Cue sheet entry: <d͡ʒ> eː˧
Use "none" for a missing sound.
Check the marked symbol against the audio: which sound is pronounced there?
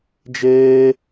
d͡ʒ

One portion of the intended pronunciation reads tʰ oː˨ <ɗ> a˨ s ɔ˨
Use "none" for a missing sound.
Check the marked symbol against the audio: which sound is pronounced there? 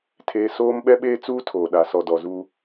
ɗ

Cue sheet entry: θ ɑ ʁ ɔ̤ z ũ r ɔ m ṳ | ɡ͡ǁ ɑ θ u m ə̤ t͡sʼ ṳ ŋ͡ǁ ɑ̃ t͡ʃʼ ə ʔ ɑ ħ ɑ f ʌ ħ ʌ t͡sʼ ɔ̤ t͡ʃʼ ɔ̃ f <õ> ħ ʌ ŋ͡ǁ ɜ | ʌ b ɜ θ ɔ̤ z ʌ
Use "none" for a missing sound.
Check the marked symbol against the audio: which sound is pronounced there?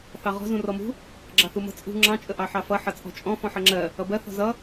ɔ̃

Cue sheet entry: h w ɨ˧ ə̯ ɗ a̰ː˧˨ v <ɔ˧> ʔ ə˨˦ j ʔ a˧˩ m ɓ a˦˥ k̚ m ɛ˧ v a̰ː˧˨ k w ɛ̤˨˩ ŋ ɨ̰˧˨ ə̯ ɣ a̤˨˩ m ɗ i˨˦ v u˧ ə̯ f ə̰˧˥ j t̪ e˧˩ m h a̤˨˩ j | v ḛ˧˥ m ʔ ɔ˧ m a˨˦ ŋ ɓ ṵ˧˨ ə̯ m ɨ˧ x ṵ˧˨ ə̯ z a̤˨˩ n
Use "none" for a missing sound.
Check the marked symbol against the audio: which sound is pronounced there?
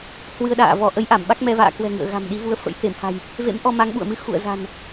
ɔ˧˩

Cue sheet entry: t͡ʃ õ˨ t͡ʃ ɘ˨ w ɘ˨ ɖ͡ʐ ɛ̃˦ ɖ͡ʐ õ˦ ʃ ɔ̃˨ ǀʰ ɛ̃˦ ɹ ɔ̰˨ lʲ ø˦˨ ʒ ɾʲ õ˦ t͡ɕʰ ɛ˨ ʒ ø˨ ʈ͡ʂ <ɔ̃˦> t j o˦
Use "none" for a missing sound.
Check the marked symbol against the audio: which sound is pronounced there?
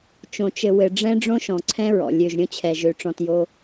ɔ̃˨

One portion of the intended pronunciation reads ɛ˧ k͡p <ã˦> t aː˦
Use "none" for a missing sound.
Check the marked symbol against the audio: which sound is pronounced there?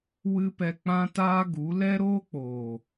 ã˦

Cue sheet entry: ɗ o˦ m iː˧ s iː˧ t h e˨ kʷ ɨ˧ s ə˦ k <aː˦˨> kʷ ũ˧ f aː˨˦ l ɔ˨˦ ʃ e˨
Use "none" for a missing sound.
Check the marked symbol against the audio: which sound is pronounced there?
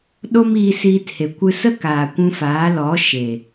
aː˨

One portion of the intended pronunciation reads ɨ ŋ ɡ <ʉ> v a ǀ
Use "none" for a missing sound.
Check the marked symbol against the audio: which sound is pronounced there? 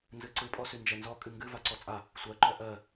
ɨ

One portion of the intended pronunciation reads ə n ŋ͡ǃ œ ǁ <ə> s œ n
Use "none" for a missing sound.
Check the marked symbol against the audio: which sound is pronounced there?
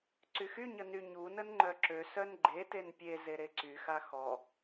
ø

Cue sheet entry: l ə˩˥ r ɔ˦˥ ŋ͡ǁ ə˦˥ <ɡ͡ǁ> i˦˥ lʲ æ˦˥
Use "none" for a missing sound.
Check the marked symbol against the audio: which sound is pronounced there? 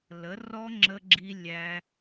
ɡ͡ǁ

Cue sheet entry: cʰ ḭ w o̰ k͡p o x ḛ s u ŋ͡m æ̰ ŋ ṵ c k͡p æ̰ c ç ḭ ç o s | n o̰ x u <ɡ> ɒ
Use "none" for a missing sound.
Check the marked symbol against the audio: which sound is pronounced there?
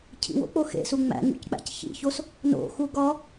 ɡ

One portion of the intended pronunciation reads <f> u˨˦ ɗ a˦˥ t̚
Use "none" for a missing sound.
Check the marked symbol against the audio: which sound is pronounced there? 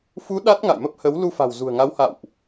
f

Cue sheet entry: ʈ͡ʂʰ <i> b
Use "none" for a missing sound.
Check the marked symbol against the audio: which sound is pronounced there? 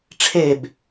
e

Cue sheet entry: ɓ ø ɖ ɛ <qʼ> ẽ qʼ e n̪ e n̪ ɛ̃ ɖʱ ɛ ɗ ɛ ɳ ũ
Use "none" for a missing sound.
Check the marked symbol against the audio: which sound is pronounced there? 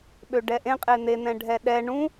ʔ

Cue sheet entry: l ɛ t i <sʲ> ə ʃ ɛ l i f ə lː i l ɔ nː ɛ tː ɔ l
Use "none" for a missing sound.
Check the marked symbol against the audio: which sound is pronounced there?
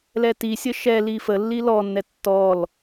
sʲ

